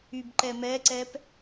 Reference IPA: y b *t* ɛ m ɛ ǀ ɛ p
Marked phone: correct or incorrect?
incorrect